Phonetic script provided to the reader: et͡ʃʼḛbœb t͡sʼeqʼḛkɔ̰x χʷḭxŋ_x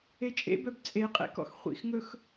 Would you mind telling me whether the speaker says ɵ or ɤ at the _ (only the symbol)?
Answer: ɵ